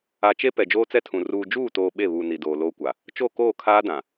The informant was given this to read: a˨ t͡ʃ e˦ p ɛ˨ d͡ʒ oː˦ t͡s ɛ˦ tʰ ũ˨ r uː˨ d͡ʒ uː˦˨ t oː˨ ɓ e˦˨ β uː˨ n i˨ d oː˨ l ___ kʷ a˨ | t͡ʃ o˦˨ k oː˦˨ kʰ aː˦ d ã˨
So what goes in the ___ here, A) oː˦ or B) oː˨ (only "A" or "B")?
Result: A